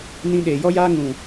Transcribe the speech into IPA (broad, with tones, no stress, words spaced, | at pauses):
nĩ˧ɗeː˨jɔ˦jaː˦ ŋũ˨